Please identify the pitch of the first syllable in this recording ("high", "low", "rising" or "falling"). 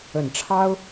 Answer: low